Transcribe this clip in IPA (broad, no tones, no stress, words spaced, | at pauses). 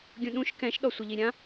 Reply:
ɡʲũɗũʃ kɛ̃ʃ ɗɔsʷɪʎiɾʲã